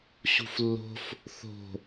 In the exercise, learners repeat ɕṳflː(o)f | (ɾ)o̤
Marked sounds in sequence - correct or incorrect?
incorrect: o̤, incorrect: θ

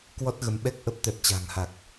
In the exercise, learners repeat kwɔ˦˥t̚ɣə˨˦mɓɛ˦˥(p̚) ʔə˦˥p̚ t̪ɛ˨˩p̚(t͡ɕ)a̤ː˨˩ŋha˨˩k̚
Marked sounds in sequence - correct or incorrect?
incorrect: k̚, correct

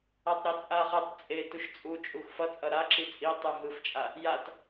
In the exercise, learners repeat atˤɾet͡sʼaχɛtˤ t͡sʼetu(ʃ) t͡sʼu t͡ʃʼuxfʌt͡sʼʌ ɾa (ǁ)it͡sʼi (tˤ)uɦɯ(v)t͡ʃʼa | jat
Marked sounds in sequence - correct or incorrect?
correct, correct, correct, incorrect: f

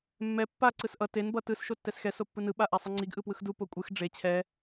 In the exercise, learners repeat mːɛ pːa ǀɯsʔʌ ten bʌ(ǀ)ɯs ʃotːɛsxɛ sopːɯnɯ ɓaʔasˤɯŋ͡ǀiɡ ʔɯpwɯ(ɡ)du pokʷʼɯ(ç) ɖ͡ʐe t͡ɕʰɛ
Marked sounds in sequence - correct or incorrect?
incorrect: t, incorrect: x, incorrect: x

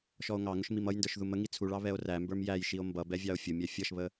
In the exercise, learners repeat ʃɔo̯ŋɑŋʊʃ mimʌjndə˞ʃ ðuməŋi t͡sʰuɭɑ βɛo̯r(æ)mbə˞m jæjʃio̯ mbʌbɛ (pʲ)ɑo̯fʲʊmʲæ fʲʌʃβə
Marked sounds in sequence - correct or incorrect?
correct, incorrect: vʲ

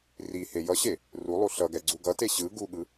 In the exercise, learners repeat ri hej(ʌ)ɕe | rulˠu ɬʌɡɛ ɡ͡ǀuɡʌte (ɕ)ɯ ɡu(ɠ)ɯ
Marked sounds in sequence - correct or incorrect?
correct, correct, correct

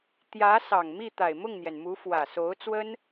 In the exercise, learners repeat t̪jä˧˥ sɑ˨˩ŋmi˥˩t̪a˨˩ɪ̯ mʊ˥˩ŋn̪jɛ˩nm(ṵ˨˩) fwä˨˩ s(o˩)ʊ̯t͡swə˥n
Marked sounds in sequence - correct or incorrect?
incorrect: u˧˥, incorrect: o˧˥

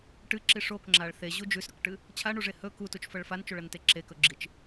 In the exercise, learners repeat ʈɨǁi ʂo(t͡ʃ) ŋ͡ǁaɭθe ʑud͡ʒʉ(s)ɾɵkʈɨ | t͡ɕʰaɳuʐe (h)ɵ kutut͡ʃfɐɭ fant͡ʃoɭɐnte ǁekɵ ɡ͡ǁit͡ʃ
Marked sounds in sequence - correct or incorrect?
incorrect: k, correct, correct

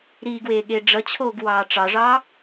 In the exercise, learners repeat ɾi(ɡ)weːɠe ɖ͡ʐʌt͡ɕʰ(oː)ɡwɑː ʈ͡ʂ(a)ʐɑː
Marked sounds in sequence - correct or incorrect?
correct, correct, incorrect: ɑ

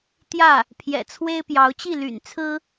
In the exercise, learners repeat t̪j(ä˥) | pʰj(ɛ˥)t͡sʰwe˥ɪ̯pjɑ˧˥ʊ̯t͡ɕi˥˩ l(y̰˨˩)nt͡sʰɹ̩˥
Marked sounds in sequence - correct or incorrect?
incorrect: ä˥˩, incorrect: ɛ̰˨˩, correct

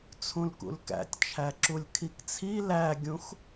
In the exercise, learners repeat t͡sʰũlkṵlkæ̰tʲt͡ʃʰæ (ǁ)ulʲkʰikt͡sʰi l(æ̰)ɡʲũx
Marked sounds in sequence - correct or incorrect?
correct, incorrect: æ

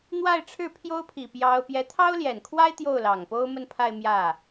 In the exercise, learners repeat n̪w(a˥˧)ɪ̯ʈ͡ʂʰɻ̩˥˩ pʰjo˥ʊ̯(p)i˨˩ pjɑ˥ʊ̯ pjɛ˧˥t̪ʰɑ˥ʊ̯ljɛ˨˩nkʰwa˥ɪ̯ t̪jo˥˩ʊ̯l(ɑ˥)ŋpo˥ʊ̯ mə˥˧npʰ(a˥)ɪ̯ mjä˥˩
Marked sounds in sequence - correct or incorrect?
correct, incorrect: pʰ, incorrect: ɑ˨˩, incorrect: a˥˧

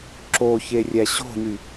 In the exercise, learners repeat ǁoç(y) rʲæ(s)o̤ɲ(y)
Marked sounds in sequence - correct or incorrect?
incorrect: e, incorrect: ɕ, correct

